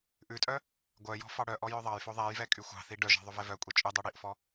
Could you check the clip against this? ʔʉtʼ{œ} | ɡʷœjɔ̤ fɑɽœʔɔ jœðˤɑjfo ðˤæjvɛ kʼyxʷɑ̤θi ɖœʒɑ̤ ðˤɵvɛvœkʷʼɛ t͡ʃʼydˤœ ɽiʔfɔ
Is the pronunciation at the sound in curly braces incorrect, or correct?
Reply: correct